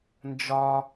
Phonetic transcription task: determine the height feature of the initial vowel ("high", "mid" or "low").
low